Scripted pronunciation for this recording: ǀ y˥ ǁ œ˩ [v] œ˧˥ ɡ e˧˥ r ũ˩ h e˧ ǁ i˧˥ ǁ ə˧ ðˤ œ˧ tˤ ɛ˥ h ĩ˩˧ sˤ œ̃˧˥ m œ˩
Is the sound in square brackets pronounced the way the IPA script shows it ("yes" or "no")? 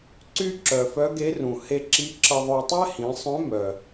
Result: no